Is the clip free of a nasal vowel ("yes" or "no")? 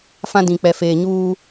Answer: no